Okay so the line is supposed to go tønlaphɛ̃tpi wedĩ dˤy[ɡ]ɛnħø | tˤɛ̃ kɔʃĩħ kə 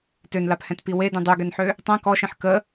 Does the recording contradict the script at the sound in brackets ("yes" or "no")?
no